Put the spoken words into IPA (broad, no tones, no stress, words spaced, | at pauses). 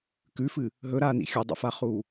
kʉfɨ | ɦɵɾaːnḭ xʲɵdˤḭfaχuː